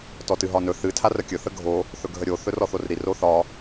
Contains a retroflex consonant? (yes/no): no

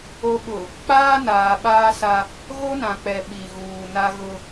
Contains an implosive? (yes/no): yes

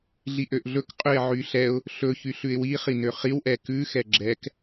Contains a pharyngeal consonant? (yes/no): yes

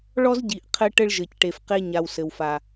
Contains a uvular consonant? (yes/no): yes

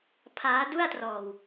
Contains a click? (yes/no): no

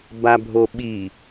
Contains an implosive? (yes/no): yes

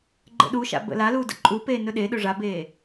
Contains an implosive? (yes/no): yes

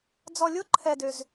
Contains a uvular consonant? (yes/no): no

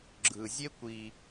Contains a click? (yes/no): yes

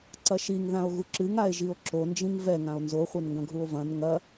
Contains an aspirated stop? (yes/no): no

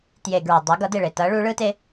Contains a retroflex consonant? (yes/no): yes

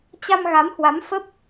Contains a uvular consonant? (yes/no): no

